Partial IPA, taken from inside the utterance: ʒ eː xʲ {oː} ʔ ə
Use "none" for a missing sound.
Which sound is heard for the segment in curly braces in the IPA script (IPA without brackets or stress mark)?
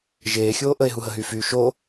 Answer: oː